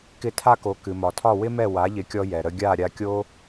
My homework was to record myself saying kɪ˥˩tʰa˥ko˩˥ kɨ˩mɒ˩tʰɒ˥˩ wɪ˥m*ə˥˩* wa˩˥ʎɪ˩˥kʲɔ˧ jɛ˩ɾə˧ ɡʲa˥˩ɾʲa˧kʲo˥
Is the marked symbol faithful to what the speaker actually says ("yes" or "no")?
no